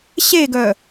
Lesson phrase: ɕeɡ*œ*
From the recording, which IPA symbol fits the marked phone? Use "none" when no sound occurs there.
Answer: œ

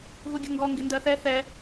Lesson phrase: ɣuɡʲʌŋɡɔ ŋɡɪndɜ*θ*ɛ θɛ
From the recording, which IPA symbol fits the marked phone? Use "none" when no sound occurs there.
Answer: θ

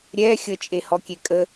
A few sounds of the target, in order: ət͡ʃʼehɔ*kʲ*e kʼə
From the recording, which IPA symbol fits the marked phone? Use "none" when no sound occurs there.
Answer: kʲ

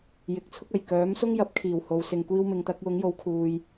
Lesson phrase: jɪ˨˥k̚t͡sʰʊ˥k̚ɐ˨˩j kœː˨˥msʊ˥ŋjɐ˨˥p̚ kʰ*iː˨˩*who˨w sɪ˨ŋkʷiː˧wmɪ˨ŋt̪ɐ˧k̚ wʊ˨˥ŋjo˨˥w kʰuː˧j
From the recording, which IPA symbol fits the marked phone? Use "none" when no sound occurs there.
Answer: iː˨˩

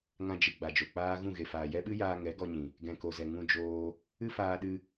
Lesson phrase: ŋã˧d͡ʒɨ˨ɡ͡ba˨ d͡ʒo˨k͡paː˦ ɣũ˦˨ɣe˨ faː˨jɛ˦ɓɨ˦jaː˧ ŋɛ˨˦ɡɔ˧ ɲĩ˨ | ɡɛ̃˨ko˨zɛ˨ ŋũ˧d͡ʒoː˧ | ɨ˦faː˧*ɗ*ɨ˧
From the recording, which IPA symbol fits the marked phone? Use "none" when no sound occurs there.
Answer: ɗ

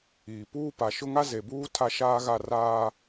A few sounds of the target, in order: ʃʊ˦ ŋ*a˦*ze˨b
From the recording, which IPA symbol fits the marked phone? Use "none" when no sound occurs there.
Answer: a˦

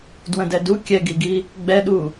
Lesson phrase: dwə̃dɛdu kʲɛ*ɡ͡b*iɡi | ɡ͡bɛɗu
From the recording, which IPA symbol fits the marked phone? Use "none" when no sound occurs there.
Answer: ɡ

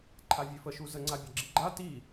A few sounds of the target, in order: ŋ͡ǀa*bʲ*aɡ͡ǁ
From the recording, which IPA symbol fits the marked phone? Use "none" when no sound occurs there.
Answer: bʲ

